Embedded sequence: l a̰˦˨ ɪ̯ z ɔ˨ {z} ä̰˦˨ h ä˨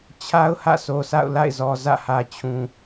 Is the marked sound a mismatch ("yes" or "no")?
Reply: no